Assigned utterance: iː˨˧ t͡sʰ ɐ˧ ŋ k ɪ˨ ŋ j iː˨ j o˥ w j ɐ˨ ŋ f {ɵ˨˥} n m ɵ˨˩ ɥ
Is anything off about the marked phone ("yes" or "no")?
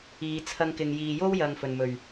yes